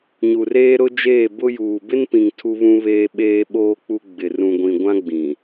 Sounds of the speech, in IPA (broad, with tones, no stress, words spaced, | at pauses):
ɲu˨reː˦ɾʊ˦d͡ʒeː˦˨ bʊ˦juː˨ bɪ˦npĩ˨ŋ tʰu˦βũ˦βeː˦ ɓeː˦ɓoː˦k͡pu˦ ɡ͡bɪ˨ rũ˨ɡʷĩ˨ɡʷã˦ɡ͡bĩ˨